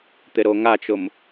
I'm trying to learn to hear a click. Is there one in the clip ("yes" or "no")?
no